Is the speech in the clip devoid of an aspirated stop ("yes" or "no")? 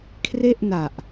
no